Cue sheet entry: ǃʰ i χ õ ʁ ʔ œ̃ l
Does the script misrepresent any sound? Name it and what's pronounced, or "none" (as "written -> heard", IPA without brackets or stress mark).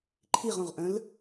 χ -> ʁ